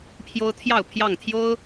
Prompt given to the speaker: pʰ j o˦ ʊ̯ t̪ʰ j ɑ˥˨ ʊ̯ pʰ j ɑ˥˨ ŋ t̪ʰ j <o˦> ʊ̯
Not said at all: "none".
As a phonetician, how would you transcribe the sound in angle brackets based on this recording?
o˦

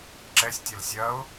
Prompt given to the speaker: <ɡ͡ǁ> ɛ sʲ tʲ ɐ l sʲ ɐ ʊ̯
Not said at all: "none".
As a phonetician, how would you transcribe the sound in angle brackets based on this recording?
ǁ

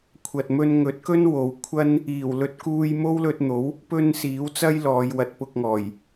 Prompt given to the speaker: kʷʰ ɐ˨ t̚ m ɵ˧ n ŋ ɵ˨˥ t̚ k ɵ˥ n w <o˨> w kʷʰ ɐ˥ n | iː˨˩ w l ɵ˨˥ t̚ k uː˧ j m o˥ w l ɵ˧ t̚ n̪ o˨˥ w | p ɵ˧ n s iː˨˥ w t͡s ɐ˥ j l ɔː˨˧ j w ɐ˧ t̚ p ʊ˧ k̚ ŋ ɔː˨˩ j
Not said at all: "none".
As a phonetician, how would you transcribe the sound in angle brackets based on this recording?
o˨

